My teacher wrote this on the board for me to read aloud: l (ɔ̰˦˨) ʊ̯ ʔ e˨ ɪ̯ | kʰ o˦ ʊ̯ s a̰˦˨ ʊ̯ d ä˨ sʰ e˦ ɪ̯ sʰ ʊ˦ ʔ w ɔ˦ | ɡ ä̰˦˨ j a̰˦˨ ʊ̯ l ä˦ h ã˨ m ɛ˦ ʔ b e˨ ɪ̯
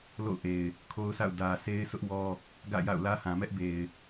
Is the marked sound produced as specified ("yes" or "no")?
no